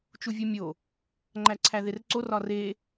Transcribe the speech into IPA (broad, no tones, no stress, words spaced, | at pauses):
t͡ʃuvʲumʲo | ŋ͡ǃæǀʰæðerǀor ɒre